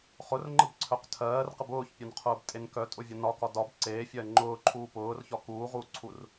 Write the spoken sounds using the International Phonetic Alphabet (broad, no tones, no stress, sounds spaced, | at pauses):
χ ʊ r ŋ͡ǃ ə b ǀʰ œ q tʰ ɜː r q ə b ʊː ç pʲ ɒ n qʰ ʊː b tʼ e n k œ tʼ ʊ vʲ ɒ n ɒ k ɒ d ɒ b ǀ eː fʲ ɜː ŋ͡ǃ ʊː ǃʰ uː p ʊː r ç ɒ k uː ʁ uː ǀʰ u r